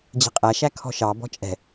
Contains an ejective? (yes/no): yes